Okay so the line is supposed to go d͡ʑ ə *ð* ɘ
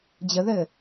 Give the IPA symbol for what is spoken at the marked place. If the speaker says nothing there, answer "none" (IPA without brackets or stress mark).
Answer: ð